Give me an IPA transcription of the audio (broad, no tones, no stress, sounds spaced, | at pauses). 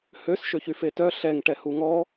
h ø s ʃ ø ç y f e t œ ɬ ɛ ŋ ʈ ɛ h u ŋ ɔ